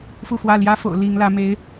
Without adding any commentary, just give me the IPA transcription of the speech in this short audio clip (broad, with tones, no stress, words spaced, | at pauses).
fu˥˨xwä˥˨ ljä˦fo̰˨˩ʊ̯ li˨˦ŋlä˨˦ me˨˦ɪ̯